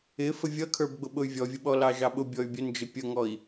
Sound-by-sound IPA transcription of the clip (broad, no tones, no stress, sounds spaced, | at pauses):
ɪ f ə vʲ ʌ kʰ ə˞ b ɡ͡b ʊ ɓ ʊ y̯ vʲ ɔ vʲ ə ɓ ɔ l ɑ ʒ ɑ ɓ ʊ bʲ ɔ y̯ bʲ ə n d͡ʒ ɪ pʲ ə ŋ ɔ i̯